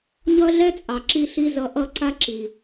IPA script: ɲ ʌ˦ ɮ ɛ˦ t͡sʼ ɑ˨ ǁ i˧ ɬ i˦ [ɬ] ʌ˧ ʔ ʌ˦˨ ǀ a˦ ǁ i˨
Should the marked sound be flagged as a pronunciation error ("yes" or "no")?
yes